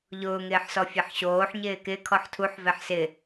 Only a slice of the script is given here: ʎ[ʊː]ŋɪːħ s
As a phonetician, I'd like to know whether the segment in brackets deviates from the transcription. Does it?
no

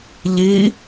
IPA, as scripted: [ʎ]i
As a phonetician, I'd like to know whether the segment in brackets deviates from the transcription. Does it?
no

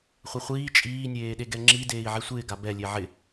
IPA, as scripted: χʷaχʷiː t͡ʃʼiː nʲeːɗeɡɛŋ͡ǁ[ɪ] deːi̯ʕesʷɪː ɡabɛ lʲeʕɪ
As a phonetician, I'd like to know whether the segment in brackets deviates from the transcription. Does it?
yes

